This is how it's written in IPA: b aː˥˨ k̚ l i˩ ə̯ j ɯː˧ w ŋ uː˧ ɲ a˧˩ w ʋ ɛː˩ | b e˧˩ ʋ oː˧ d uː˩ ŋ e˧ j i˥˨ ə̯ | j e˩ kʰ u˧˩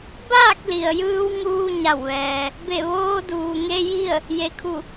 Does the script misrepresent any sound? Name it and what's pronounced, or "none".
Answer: none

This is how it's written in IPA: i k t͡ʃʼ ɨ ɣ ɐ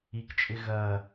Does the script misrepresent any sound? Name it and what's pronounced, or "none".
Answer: ɨ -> ɪ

